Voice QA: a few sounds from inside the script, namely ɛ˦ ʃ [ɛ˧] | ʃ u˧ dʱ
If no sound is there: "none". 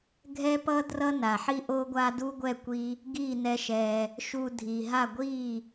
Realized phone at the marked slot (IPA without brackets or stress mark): ɛ˧